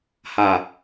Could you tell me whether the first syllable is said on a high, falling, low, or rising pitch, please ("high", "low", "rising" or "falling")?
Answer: low